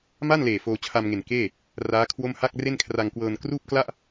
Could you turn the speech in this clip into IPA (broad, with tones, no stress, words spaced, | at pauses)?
ma˥˩nleː˨˩ foː˧t͡ɕʰa˧mŋe˨˩n keː˥˩ | raː˦˥kʰwo˥˩m ha˥˩k̚re˥˩nkʰra˧ŋkwɤː˧n kruː˥˩p̚kla˥˩ʔ